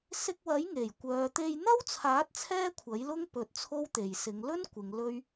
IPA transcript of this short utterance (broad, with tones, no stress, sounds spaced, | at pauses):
s ɪ˧ k̚ w ɐ˨˥ j ŋ e˨˩ j kʷ œː˨ t̪ e˧ j n̪ ɐ˥ w t͡sʰ aː˨˥ t̚ t͡sʰ ɛː˥ kʷʰ ɐ˨˥ j l ʊ˥ ŋ p ɵ˧ t̚ t͡sʰ o˥ w t̪ e˨ j s ɪ˨˧ ŋ l ɵ˥ n kʷ ɪ˨˧ ŋ l ɵ˥ ɥ